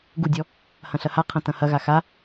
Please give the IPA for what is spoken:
ɡ u dʲ ɔ | h ɐ̃ ɬ ɐ h a qʰ ɐ̃ t ɐ̃ h ɐ ɣ a x a

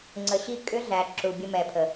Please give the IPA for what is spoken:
ŋ͡ǀ ə˧ ɕ i˦ kʼ ʏ˦ ɮ æ˨ ǁ u˨ bʲ ə˧ m ɛː˨ pʰ ə˨

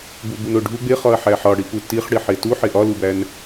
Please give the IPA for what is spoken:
b u b u n o ɖʱ u ɡ͡b e χ ɒ ɐ̯ ħ æ ħ ɒ ɽ i p u t i χ ɽ i ħ e t u ħ e ʔ ɒ l u b æ n

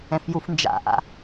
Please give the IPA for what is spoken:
ɛ̃ f j u f n d͡ʒ a̰ ʔ a̰

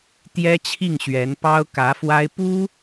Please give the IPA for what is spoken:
t̪ j ɛ˥ t͡ɕʰ i˥˩ ŋ ɕ ɥ ɛ˧˥ n p ɑ˥ ʊ̯ k ä˧˥ f w a˥ ɪ̯ p u˥

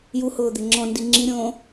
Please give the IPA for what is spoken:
j u h ʊː d̪ ɪ ŋ͡ǁ ɔ̃ n d i ŋ͡ǁ i ɾʲ õː

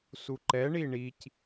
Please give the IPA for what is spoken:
s u ǃ ɛ ɳ i ɳ i c

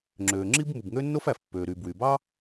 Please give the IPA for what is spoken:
ŋ͡ǁ øː˩ ŋ͡ǁ i˥ b m u˩ b ŋ ø˥ nː o˥ f æ˩ f pː øː˩ ɾ yː˩ b w y˩ b ɑ˥

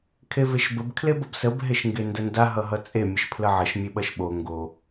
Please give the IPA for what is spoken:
kʰ e v e ʃ b ə b kʰ l e b ʌ b s ə b ɦ e ʃ ŋ ɡ e n d ə n d a ɦ ʌ ɦ ʌ t͡sʼ e mʲ ə ʃ pʰ l ə ʕ ʌ ʃ mʲ e ɓ ʌ ʃ ɓ o ŋ ɡ o

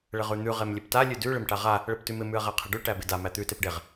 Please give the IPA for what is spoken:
ɭ ɘ ʁ ʉ n̪ ʉ ʁ e m lʲ e p t a lʲ ʉ d ʉ ɭ ɪ m ʈ a ʁ a | ɭ ɘ p t ʉ m ɪ m ʉ ɐ̯ ʁ æ qʰ ɪ ɖ ʉ ʈ æ b ɪ d a m æ t̪ ʉ t e p ɖ e ʁ

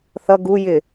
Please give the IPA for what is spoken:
θ ʌ ɡ u j ɪ

